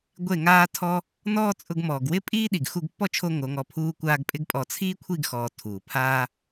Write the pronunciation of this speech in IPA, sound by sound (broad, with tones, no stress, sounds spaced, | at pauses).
ɡʷ e˦˨ ŋ aː˦ tʰ ɔ˦ | n ɔː˦ t͡sʼ ʊ˧ ɡ m ɔː˨ ɡ w ɪ˦ pʼ iː˦ ɗ i˨ ɡ x u˧ ɡ pː ɔ˦ t͡ʃʰ o˧ ŋ o˨˦ ŋ ɔ˧ pʰ uː˦ kʷ aː˦ ɡ pʼ ɪ˦ ɡ pʼ ɔ˧ t͡sʰ iː˦ kʷʰ i˦˨ ɡ x ɔː˨ tʰ uː˨ pʰ aː˦